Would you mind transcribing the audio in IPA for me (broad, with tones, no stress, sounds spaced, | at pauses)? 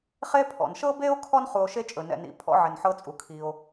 χ e˦ pʰ ɔ̰˩ n ʃ ɤ˥ b e˥ o̯ kʰ ɔ˥ n χ u˨ o̯ ʃ e˥ t͡ʃʼ ɵ˩ n ɛ̰˨ n ḭ˩ pʰ ɔ̰˥ ʕ ɪ˨ n ħ ɤ˦ t͡sʼ u˩ kʰ i˨ o̯